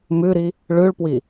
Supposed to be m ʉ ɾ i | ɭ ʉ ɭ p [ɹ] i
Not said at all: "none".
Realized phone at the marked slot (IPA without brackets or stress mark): w